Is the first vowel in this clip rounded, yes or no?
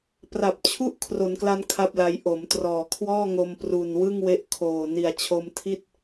no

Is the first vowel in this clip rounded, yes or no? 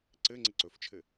no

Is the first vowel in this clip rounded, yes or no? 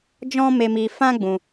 yes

